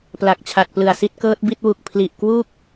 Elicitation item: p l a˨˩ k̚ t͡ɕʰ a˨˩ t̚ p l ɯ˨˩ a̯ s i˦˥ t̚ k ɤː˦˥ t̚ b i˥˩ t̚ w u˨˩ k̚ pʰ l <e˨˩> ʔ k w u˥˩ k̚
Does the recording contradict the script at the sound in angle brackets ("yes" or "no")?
yes